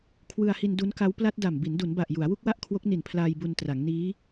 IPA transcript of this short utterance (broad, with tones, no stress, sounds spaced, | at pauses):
kʰ w ɯ˧ a̯ h i˧ n d u˦˥ n k a˦˥ w p l a˦˥ t̚ d a˨˩ m b i˩˦ n d u˩˦ n b a˨˩ ʔ j u˩˦ a̯ w u˥˩ k̚ w a˥˩ ʔ kʰ w o˦˥ k̚ n i˨˩ n pʰ l aː˧ j b u˧ n t r a˩˦ ŋ n iː˦˥